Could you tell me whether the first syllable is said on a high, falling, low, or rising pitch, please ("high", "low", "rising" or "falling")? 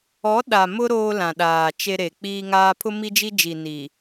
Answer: rising